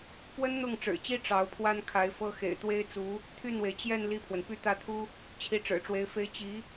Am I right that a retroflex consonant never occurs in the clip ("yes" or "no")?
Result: no